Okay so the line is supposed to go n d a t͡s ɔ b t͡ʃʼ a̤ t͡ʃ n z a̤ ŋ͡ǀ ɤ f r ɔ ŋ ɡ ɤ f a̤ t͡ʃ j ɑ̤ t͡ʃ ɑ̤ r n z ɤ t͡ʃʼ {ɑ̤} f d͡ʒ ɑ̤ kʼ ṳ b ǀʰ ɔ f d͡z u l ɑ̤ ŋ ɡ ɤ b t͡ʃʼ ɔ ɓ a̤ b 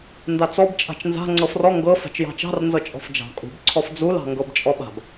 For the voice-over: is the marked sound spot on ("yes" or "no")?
no